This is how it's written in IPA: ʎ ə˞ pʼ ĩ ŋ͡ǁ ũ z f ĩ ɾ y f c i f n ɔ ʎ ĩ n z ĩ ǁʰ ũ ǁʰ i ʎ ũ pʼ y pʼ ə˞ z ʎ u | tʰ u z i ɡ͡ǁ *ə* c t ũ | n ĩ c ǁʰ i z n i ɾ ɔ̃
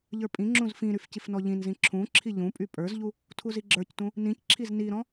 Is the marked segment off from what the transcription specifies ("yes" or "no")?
yes